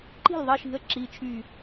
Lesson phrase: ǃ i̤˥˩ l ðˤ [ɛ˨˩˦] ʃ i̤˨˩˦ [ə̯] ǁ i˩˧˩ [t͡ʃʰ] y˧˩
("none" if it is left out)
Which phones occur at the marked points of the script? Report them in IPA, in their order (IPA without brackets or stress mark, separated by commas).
ɛ˩˧˩, ə̯, t͡ʃʰ